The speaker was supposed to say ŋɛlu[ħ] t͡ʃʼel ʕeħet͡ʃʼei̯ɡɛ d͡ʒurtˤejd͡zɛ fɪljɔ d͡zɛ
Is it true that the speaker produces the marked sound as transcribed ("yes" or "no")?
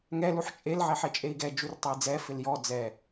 yes